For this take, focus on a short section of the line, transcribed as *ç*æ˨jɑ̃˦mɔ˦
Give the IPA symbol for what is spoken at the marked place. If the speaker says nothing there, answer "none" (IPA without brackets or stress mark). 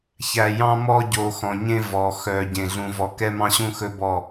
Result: ç